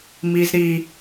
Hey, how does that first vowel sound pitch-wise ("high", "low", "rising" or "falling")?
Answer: low